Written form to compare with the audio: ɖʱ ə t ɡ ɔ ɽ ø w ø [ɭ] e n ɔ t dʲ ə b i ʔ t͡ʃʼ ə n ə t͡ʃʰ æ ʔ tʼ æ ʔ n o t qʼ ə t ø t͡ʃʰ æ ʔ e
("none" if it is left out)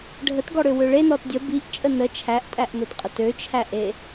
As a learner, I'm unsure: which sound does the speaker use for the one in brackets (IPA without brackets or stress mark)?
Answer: ɭ